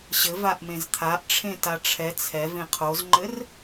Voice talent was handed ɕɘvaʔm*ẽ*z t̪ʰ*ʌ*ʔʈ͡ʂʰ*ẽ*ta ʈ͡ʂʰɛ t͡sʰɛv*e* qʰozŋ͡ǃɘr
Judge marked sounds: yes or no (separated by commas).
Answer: yes, no, yes, no